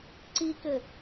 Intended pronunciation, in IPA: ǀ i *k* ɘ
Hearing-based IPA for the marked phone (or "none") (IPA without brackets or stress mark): k